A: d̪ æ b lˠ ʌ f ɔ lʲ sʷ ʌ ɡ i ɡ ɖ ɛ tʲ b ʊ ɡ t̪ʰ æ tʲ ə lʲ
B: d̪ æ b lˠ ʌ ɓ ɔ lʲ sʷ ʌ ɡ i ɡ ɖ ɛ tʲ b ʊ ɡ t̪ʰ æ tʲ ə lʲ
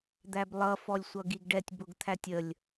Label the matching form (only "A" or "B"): A